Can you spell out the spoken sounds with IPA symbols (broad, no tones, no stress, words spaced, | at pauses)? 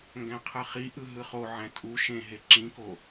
ŋɡæ̃qʰɯχiʔɯ ɦɯχoʕæ̃ tʼu ʃẽɦe ǁĩko